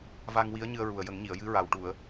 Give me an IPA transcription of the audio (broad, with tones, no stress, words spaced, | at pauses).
va˧ŋwi˧˥ə̯ ɲɨ˧ə̯ɹu˨˩ə̯jə˨˩˦ŋɲi˨˩˨ə̯ jɨ˧˥ɹa˨˩w ʈu˨˩˨ə̯